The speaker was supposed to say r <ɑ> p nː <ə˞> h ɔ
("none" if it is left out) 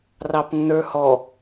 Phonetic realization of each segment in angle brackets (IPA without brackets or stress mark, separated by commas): ɑ, ə˞